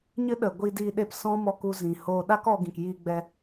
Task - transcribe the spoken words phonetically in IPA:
ɲ ɨ˦ ɗ ə˨ ɡʷ i˧ d iː˧ ɗ e˧ p s ɔ̃˦ m ɔ˧ k u˧ z ĩ˨ h oː˧ ɗ a˦ k ɔ˧ ɡ ĩ˨ k j iː˧ ɡ͡b ɛ˧

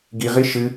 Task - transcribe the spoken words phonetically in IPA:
ɡ i ʁ i ʃ ɨ

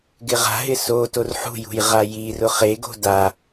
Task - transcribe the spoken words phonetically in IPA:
ɡ ɪ ʁ a̤ ɦ ɪ s o t o r ħ ṳ j ṳ j ʁ a j i r ʊ χ e ɡ o̤ d a

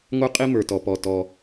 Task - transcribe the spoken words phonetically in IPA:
ŋʷ ə˞˥ qʼ i˥ m ə˞˩ t ɔ˩ p ɔ˩ t ɔ˩

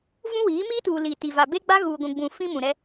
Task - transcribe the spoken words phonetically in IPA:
v ũ˦ w iː˨˦ m iː˦ t uː˨ l iː˨ t i˨ v a˨ b e˦ ɡ͡b a˦ ɣ uː˨ ɡʷ ũ˨ ɡ͡b ũ˨ f ĩ˦ m ũ˨ ɾ ɛ˦

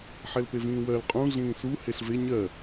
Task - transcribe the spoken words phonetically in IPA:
ħ ɛ l p e v ĩː w ɜ l qʼ ũ ɮ ĩː s u h e ɬ v e ɲ ɜ

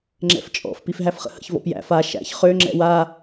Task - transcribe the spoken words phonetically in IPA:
ŋ͡ǁ ɛ̰ f t͡ʃʼ ɔ̰ f p i f ɦ æ f χ ə̰ h ə̰ ç v ɔ̰ p j æ̰ f a ʃ æ̰ ç χ ø ŋ͡ǁ ɛ̰ w a

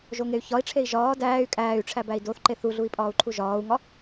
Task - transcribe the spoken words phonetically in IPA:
ʒ o ŋ e y̯ ç ɒ i̯ ʈ͡ʂʰ e i̯ ʒ ɒː d æː y̯ kʼ æː y̯ ʈ͡ʂʰ æ b æ i̯ d o θ ǃ e θ u ɮ u i̯ pʼ ɒː u̯ ǃʰ u ʒ ɒː u̯ ŋ ɒ

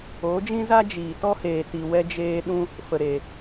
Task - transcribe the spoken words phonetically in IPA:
oː˨˦ d͡ʒ ĩ˦ z a˦ d͡ʒ iː˨ t ɔ˦ h eː˨ t i˨ w ɛ˧ d͡ʒ eː˧ ɗ ũ˧ | f ə˨ ɾ e˨

